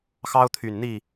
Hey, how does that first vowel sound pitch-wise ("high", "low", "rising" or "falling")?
high